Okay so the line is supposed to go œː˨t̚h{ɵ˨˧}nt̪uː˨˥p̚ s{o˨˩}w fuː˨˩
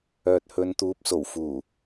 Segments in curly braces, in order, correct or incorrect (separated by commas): correct, correct